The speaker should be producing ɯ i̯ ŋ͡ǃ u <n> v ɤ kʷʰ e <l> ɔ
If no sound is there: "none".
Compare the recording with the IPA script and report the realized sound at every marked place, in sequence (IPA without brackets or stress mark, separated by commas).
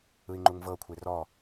ŋ, r